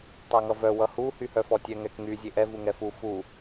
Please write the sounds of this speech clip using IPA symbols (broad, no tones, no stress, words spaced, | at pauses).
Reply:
tˤaŋʌvœ wʌhu hyhœfɔtʲɛ ŋɛkŋy zʲeʔɛ vuŋɛfu fu